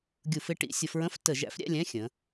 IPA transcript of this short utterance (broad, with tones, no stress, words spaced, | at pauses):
ɡʲu˧˩˧fɪ˥˧ ʈḭ˧˥˧ sʲʌ˧˩˧fɹə̃˧˥˧f tə˧˩˧ʒæ̰˨˥fɾʲæ̰˧˥˧lʲɛ̃˧˥˧ xʲə̃˩˧